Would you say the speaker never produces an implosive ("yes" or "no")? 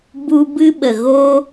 no